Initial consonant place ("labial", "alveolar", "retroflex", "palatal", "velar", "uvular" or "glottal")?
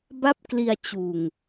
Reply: labial